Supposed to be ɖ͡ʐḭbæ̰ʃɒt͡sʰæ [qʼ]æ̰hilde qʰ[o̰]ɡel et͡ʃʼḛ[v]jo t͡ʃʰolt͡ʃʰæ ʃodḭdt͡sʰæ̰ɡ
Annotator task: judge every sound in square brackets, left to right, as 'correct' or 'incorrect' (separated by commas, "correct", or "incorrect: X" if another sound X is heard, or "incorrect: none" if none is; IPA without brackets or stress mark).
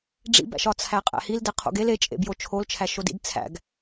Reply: correct, correct, incorrect: b